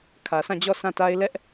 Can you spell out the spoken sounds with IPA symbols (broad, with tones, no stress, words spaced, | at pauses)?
kʰä˨sʰã˦˨d͡ʑɔ˦˨ sʰã˦˨ta˦ɪ̯ lɛ˦ʔ